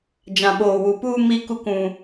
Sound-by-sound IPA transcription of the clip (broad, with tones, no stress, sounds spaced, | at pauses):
d͡ʒ ã˨ ɓ oː˨ w u˨ p uː˦ m i˦ k u˦ k ũ˦